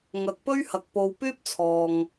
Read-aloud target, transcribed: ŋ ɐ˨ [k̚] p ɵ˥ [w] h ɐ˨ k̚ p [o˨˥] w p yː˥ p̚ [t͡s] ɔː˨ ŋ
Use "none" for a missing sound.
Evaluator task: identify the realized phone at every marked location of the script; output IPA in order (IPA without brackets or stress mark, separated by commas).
k̚, ɥ, o˨, t͡sʰ